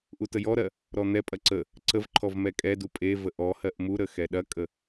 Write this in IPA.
ʔ u t ə j ɔ ɾ ɜ | ɾ ɔ n̪ ɛ pʼ ɐ ǀ ə | ǀ ə v ǃʰ ɔ v m ɛ kʼ ɛ d u pʼ e v ə ʔ ɔ h ɜ ʔ m u ɾ ə x ɛ ɗ ɐ kʼ ə

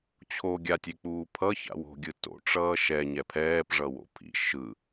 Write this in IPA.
t͡ɕʰ o ɡʲ a tʲ e k͡p uː pʰ ʌ ç a̰ w o̤ ɡʲ ɯ t o̰ ʈ͡ʂ ʌː ʃ ɛ ɲ ɛ pʰ ɛː p ʐ ʌ w o̰ pʰ ḭ ʃ ɯ

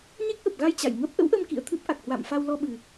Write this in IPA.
ɲ e˦˥ k̚ ʔ ə˨˩ p̚ ɣ a˧ j t͡ɕ a̰˧˨ j ŋ ə˦˥ p̚ ʔ ə̰˧˥ w ʔ ə˧ m k ḭ˧˨ ə̯ t̪ʰ ɨ˦˥ p̚ ʔ a˨˩ k̚ h w a̰ː˧˨ m f a˧ w l ɔ˧ ɓ ɨ˨˩

